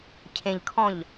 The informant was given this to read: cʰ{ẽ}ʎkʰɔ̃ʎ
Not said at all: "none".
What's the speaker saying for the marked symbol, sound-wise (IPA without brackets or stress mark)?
ẽ